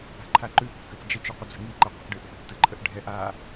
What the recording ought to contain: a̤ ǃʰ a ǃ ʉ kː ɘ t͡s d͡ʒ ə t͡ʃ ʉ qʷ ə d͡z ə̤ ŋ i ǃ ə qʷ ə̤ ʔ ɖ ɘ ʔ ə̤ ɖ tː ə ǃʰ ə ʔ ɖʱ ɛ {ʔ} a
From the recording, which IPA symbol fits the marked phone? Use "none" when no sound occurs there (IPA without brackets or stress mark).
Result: ʔ